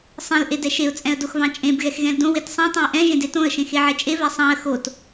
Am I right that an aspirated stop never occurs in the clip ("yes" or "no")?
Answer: yes